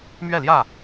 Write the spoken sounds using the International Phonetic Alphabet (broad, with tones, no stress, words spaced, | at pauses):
mɥɛ˥˨ljä˥˨